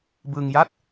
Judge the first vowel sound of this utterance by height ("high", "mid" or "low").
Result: high